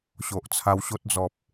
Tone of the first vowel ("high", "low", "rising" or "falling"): low